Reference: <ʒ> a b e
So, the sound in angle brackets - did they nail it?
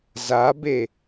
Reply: no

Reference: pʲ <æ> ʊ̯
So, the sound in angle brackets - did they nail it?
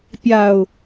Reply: no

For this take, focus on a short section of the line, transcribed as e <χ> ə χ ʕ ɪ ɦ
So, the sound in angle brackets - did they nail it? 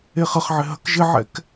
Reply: yes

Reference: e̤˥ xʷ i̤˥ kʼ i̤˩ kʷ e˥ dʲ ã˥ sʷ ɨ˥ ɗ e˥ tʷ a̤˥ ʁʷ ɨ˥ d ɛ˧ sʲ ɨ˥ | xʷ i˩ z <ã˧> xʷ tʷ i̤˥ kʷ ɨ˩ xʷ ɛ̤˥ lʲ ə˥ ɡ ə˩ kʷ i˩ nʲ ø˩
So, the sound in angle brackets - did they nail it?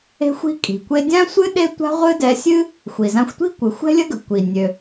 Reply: yes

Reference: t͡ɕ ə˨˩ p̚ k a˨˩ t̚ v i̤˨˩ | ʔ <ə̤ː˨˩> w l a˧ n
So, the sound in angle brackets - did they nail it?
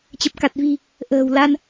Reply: yes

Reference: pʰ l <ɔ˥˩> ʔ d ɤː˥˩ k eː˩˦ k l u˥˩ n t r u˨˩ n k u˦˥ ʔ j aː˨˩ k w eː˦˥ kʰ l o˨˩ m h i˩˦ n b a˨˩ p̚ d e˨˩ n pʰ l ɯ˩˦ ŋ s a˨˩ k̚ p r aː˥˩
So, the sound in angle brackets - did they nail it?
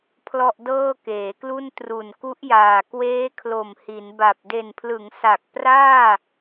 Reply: yes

